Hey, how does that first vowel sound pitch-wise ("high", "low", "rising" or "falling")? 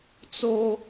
high